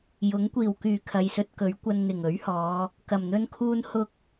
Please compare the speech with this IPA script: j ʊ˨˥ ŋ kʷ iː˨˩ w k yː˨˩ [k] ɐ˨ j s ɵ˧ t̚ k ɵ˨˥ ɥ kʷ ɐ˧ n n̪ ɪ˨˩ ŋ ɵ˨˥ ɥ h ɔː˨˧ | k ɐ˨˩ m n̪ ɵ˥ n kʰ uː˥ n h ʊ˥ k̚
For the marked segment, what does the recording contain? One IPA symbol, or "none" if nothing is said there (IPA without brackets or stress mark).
kʰ